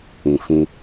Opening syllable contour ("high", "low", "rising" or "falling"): low